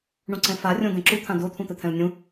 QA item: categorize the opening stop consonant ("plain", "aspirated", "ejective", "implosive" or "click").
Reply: click